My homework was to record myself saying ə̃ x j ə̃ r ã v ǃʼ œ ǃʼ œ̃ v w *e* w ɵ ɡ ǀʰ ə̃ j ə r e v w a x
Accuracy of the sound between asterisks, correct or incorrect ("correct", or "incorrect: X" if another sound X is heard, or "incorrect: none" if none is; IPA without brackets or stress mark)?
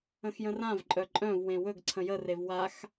incorrect: ẽ